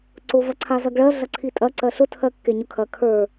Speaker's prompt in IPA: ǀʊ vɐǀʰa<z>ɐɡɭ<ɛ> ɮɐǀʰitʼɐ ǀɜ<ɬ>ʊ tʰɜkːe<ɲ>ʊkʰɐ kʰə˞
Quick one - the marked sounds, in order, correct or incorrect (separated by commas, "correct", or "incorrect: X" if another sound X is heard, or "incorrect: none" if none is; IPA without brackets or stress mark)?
correct, incorrect: ɜ, correct, correct